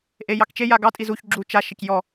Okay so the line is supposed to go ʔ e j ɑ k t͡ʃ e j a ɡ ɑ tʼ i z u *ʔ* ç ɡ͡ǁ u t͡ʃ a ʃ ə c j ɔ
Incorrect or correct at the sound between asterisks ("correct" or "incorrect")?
incorrect